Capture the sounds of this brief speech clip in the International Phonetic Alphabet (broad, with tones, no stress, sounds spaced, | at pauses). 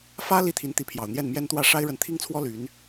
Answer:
f ä˥ l i˥ t̪ʰ i˧˥ n t̪ i˧˥ pʰ j ɑ˨˩ ʊ̯ n̪ j ɛ˥˩ n m j ɛ˥ n t̪ w ä˥˩ ʂ a˥ ɪ̯ ɻ ə˧˥ n t̪ʰ i˥ ŋ t͡sʰ w ɔ˥ l y˧˥ n